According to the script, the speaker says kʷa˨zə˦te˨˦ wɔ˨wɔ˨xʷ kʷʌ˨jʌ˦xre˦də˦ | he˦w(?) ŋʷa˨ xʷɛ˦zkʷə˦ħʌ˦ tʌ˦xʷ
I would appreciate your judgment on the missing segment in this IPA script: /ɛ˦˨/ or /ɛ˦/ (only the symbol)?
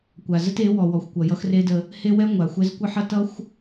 ɛ˦